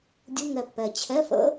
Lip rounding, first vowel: rounded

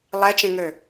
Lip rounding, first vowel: unrounded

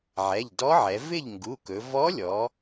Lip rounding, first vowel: unrounded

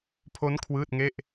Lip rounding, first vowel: rounded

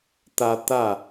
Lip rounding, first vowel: unrounded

